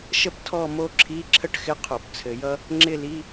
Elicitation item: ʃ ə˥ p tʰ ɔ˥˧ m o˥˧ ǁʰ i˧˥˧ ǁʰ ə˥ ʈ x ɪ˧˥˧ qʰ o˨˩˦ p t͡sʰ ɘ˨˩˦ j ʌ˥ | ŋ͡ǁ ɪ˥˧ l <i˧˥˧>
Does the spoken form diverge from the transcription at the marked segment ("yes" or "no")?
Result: no